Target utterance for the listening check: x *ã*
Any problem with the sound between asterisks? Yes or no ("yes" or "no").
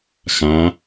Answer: no